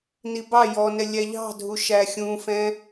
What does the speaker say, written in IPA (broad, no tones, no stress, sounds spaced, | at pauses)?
n i b ɑ j ɔ n ɛ lʲ æ ʎ ɑ̤ dʱ u ʃ æ xʲ ũ f ɛ̃